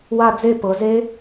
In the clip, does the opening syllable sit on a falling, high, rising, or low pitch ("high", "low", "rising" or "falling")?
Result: falling